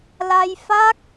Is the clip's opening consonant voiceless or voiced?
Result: voiced